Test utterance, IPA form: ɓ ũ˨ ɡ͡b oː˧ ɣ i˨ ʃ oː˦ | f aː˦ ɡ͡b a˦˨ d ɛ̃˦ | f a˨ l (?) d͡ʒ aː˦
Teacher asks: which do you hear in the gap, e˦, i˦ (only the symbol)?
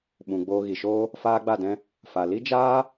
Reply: i˦